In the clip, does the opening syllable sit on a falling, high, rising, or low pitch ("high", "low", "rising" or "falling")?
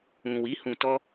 low